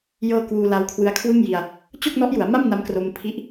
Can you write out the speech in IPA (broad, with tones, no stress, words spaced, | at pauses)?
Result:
jɤː˧ kwuː˧ la˦˥wkʰwɯ˦˥a̯kʰwɯ˥˩ŋji˧a̯ | t͡ɕo˥˩k̚nɔ˦˥ʔju˩˦a̯ma˥˩m na˦˥mkro˧mpʰi˦˥ʔ